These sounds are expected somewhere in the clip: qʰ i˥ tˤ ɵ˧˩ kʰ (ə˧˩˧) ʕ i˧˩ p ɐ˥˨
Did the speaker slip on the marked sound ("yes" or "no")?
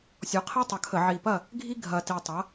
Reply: no